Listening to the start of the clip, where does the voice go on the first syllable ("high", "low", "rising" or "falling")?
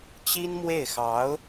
high